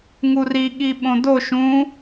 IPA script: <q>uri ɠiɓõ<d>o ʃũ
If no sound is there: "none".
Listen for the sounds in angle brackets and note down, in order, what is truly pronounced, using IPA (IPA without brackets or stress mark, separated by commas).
ŋ, d